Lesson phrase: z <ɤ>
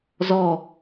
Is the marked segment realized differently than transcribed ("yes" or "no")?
yes